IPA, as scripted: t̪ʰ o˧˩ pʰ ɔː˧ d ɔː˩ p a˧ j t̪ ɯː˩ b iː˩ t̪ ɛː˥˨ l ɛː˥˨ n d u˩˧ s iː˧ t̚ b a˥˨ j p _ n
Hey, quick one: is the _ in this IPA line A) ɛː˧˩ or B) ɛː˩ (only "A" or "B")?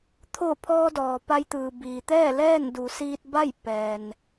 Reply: B